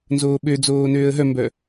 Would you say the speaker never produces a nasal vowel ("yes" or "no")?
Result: yes